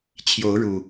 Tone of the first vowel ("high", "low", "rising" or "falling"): rising